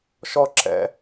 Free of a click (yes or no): no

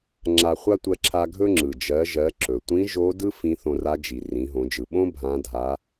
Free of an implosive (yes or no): no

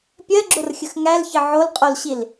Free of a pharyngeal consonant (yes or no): no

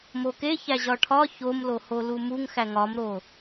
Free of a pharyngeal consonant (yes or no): yes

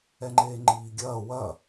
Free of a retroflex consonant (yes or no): yes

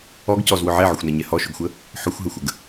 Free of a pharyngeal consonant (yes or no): no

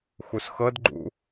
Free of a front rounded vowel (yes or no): yes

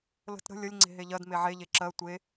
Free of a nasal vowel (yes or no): yes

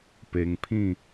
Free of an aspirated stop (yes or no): no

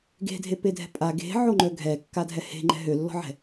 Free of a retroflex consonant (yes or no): yes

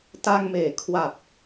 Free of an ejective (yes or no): yes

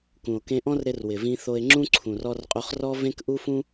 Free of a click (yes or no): no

